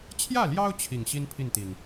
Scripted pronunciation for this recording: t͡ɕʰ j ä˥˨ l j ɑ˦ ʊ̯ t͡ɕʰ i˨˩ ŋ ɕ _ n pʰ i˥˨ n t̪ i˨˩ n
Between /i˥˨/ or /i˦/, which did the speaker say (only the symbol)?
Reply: i˦